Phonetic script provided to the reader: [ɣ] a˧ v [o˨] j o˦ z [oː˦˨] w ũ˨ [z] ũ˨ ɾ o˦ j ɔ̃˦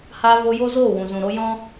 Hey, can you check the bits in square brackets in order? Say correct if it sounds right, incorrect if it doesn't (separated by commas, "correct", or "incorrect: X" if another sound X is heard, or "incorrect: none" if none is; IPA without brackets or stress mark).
incorrect: h, incorrect: o˧, correct, correct